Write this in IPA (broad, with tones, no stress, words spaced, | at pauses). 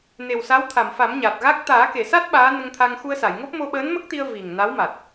ne˨˩wsa˧˥wt̪ʰa˨˩˨mfa˨˩˦m ɲa˨˩t̚ɣa˦˥k̚ t̪aː˨˩˦ke˨˩˨sa˦˥t̚ ɓaː˧˥ nə˧ŋt̪ʰa˧ŋ xu˧ə̯sa˨˩˨jŋo˦˥p̚ mo˧ɓəː˧˥nmə˦˥k̚t̪i˧ə̯ vi˨˩ŋ na˧˥wma˨˩t̚